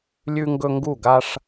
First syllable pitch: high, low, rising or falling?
high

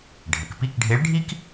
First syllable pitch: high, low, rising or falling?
low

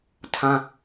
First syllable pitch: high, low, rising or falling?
high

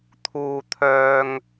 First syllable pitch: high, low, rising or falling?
low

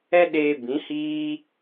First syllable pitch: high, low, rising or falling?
high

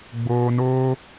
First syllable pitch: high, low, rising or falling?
low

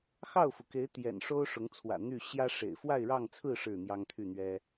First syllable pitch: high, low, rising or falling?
falling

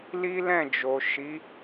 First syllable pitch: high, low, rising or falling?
high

